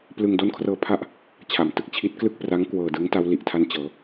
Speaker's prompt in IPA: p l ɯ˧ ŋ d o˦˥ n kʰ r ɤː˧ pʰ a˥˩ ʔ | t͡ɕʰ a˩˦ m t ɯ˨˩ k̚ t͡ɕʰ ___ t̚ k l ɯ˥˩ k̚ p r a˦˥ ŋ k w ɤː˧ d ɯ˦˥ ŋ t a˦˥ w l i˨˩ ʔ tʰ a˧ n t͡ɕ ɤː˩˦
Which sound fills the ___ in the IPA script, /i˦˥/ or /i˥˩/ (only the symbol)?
i˦˥